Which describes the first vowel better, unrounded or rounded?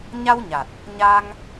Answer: unrounded